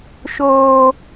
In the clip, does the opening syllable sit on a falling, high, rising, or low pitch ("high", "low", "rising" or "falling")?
high